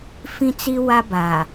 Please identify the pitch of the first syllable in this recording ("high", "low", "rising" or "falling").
high